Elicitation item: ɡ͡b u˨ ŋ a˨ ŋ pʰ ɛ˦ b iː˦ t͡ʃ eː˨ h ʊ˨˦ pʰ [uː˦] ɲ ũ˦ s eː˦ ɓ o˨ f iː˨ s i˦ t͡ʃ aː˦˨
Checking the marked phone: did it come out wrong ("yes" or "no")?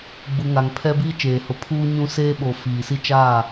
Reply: no